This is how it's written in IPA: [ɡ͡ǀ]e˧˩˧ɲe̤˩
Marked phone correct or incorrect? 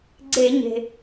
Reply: correct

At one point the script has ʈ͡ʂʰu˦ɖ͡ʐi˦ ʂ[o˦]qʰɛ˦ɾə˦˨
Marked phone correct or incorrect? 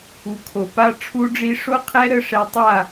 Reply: correct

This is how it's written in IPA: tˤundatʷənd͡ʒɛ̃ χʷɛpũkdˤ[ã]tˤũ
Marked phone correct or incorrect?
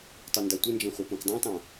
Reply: correct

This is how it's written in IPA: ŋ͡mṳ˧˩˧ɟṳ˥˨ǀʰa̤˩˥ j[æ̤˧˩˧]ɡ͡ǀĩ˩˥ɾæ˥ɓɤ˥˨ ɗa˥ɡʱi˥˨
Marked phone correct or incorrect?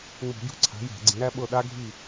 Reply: correct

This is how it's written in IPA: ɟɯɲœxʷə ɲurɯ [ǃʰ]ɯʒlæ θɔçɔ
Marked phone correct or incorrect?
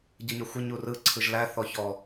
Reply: incorrect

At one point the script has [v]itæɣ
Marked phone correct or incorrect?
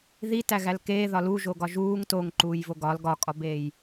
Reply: incorrect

